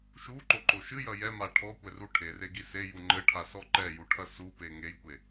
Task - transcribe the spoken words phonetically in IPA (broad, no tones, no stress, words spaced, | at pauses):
ʃuǃoǃo ʃɨjɐ jɛma ʈʰɔkʷɛru ʈʰereɡi seju ŋ͡ǃɘʈʰasɔ ǃɛjuʈʰɐ supe ŋejkʷe